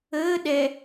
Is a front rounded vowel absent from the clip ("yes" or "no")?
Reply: yes